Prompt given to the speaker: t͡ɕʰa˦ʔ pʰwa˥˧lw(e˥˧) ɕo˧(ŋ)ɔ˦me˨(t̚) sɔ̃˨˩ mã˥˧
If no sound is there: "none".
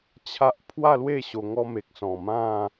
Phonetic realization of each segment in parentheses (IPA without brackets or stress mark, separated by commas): e˥˧, ŋ, k̚